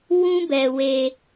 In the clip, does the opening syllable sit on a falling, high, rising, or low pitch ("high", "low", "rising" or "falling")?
high